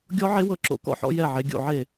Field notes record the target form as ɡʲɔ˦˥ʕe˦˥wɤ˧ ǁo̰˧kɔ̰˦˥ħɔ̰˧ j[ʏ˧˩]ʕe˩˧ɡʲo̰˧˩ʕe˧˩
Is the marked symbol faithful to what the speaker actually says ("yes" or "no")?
no